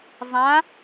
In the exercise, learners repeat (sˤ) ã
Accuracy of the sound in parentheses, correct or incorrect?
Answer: incorrect